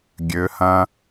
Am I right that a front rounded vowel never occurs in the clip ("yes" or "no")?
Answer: no